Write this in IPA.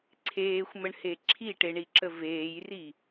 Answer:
ǀʰeːxʷməɳhe ǁʰiʈeɳiǁə veːjri

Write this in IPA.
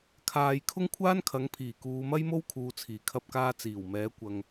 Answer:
kʰaː˧j kʰʊ˥ŋkʷʰaː˥nkʰɐ˨˥ŋ pʰiː˨˩kuː˨˧mɐ˥jmo˥w kʰuː˧t͡sʰiː˨˩kʰɐ˥p̚kaː˥ t͡siː˨˩wmɛː˨˥ kʷɐ˧ŋ

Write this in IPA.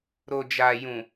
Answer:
ɾo˨d͡ʒa˨jũ˨

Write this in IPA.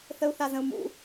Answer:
θəu̯θazə̃u̯mṵ

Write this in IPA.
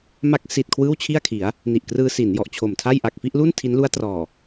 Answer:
ma˦˥k̚si˨˩t̚ kʰwɯː˥˩wt͡ɕʰi˥˩a̯kʰi˩˦a̯ | ni˨˩ʔkrɯː˧si˩˦n jɔ˨˩ʔt͡ɕʰo˨˩mtʰa˥˩j ʔa˨˩k̚fi˥˩ʔlu˥˩n tʰi˦˥nlu˦˥a̯trɔː˨˩

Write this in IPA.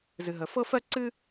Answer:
zɨ˩ɦə˩fɤ˥ fɜ˥ǀɨ˥

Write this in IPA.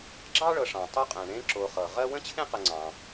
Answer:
ɡ͡ǁɑ˥ ɭɤ˨ʂɑ̃˩ tˤo˦ qʼɛ̃˩ɳẽ˦ ǁo˨χɤ˩ʁɜ˥ wə̃˥ t͡ɕʰẽ˥qə˨ŋ͡ǀɑ̃˩

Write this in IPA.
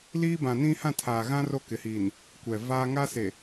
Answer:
liː˦bã˨nĩ˦ hã˦˨tʰaː˨ɣã˦ ro˦kɪ˨hiː˨n | kʷɛ˨vaː˦ ŋa˦se˨

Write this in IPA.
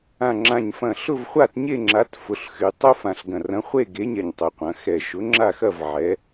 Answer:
ã˨˩ŋ͡ǁã˨˩ɲfɐ̃˨˩ ɬʊ˥˧vχʷa˥˧tɲe˥˧ŋ͡ǁa˨˥t fʊ˩˧ɬxy˩˧ tˤʊ˦˥fã˨˩ɬɡɐ̃˨˩r ɐ̃˨˥χʷe˥˧ɡe˨˥ɲɛ˨˩ɲ tˤʊ˩˧qʷɐ̃˩˧xɛ˨˩ ʃʊ˨˥ŋ͡ǁa˥˧xɐ˥˧v ʕɛ˩˧

